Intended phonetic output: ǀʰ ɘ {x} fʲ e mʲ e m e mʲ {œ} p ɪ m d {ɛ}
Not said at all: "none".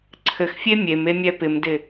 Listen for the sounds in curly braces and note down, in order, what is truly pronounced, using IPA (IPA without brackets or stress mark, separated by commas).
x, ɛ, ɪ